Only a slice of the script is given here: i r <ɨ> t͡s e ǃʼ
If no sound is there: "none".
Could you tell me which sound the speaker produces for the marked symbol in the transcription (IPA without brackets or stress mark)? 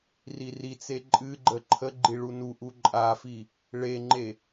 i